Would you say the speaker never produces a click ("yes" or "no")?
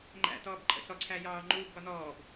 no